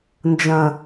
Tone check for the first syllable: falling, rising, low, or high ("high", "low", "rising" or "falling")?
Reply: low